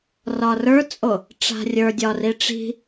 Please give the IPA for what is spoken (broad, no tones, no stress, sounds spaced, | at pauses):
r ɒ r ə˞ t͡sʼ o | ʈ͡ʂ a̤ rʲ ə˞ dʲ ɒ r i ʈ͡ʂ i̤